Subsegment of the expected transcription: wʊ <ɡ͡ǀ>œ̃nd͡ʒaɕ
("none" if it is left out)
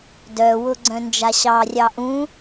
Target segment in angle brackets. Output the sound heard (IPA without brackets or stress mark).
ɡ͡ǀ